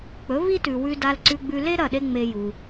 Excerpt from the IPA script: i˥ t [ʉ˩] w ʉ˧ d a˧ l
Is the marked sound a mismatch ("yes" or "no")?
no